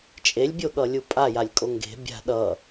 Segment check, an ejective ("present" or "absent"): present